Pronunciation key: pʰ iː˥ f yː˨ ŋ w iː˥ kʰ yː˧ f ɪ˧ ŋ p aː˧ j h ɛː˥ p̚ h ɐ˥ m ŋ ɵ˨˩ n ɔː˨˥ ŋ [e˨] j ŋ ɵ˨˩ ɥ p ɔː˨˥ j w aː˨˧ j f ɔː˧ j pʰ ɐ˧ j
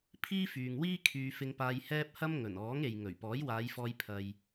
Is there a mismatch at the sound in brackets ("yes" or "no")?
no